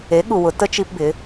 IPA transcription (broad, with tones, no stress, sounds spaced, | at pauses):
e˩˥ ɠ u˩ w ʊ˩˧ t ə˧ t͡ʃ i˧ p b ɪ˩˧